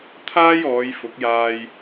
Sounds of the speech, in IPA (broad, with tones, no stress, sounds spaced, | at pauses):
t̪ʰ aː˥ j ɔː˨˧ j f ʊ˨˥ k̚ j aː˧ j